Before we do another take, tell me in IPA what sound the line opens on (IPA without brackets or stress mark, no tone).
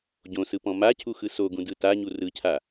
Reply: ɟ